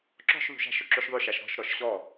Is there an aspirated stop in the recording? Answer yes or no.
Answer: no